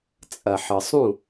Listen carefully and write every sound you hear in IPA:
t͡sʼ ɐ˨ ħ ə˨ sˤ ũ˦˨

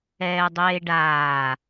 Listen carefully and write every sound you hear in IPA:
ɛː dˤ eː ɖ aː

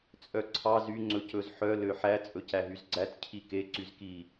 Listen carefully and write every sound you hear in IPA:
t͡sʼ œ ǀʰ ɑ z y ŋ͡ǀ ɵ c ɵ z ħ œ l ø ħ æ t͡sʼ ɵ c æ ɦ y z ɡ͡ǀ æ t cʰ i k e ǀ y z k i

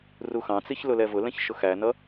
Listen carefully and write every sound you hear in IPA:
r u x ɑ̃ t͡s i ç l ʊ l ɛ v ʊ l ɛ̃ ç ʃ ʊ x æ n ʌ

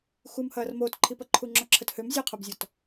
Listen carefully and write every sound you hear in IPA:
x u m h ɐː r m oː t ǃʰ i p ɐ ǃʰ u ŋ͡ǁ ɔ ǁʰ ə t h ø m zʲ e qʰ o b zʲ ɔ t

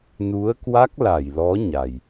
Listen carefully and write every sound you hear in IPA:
n u˨˦ ə̯ k w a˦˥ k̚ l a˧˩ j l ɔ˨˦ ɲ a˨˩ j

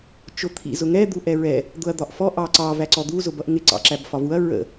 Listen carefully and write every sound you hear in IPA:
t͡ʃ ʊ t̪ʰ ḭ z ʊ ŋ ɛ d̪ u ʔ ɛ ɹ ɛ | d̪ ʊ ɐ̯ d̪ ɒ ʔ f ɔ ʔ ɑ ǀ ɑ v æ ǀ ɔ d̪ u z ʊ b ʌ ʔ ŋ ɪ ǀ ɑ̰ ǁ æ b f ɒ v u ɐ̯ ɹ ə̰

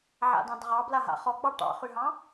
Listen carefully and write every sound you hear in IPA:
ʕ a̰ d ɑ̃ d ʁ ɑ b l a ɦ a̰ χ ɔ ɡ͡b ɑ ʈ ɑ̰ χ y ɦ ɑ̃

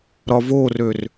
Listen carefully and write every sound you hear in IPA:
ɾ ɒ v o r ø r

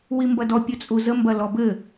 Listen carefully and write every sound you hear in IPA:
w i m b ɐ d ɔ pʲ ɵ t͡sʼ u z ə m b ɐ l ɔ b ɘ

